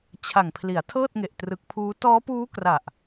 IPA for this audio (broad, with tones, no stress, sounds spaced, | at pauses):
t͡ɕʰ a˨˩ ŋ pʰ l i˩˦ a̯ tʰ ɤː˥˩ t̚ ŋ e˨˩ ʔ t r ɯ˨˩ k̚ pʰ uː˦˥ t ɔː˦˥ p uː˦˥ k r a˨˩ ʔ